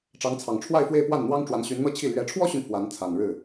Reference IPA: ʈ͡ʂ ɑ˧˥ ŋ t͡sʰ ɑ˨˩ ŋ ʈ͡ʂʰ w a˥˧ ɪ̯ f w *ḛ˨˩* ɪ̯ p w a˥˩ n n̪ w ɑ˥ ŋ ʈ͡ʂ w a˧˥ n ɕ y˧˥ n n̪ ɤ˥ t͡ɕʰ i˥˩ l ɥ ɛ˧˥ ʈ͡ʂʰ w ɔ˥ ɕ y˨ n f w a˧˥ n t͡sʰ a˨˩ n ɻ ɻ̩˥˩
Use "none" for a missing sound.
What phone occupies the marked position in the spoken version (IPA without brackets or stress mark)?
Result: e˥˧